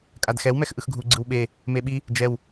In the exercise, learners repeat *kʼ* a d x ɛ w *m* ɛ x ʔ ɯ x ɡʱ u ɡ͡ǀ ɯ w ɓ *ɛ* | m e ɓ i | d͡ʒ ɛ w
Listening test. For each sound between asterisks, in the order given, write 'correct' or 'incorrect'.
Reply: correct, correct, incorrect: e

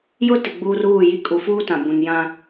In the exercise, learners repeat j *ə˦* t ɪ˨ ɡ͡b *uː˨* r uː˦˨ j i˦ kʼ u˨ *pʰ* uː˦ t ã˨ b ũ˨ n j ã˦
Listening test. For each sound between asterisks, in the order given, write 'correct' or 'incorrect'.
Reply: incorrect: ʊ˦, incorrect: uː˦, incorrect: f

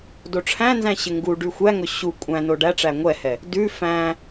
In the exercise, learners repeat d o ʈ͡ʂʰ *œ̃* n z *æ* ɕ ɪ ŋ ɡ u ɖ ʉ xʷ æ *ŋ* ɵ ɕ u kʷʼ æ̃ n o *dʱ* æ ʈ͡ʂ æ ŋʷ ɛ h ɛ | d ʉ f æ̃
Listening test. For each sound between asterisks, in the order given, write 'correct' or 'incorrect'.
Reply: incorrect: æ̃, incorrect: æ̃, correct, incorrect: ɖ

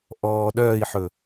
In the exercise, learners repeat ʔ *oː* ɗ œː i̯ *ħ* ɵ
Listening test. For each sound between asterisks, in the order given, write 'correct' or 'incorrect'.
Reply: incorrect: ɔː, correct

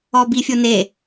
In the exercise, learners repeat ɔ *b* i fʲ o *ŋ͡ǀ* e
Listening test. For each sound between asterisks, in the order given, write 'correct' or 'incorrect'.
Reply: correct, incorrect: n

